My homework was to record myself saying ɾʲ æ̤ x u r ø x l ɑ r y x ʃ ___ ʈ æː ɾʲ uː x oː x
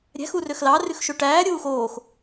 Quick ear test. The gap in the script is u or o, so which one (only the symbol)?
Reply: o